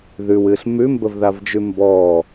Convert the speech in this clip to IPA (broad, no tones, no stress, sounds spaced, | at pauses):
ð ʉ w ɨː ɬ m ʉ m b ə v ð a v d͡ʒ ʉ m b ɔ